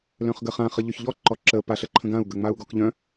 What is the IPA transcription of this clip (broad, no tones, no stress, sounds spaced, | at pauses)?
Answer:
l œ̃ χ ɡ ə χ ã χ ə ʎ œ ç ʎ ɔ ǃ ɔ ǁ ə p a ɬ ə ǃʰ ə̃ ɡ ã u̯ ɡ ə ŋ͡m a u̯ ɡ ɔ k ʎ œ̃